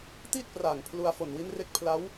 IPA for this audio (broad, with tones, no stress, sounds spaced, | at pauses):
t i˥˩ t̚ p r aː˨˩ ŋ pʰ l u˧ a̯ f o˨˩ n w i˦˥ n r e˦˥ k̚ pʰ l a˦˥ w